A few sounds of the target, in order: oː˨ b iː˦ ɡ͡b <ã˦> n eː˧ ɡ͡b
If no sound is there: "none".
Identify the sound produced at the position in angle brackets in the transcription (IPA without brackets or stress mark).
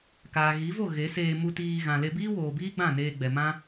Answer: ã˦˨